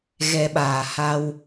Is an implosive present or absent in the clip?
present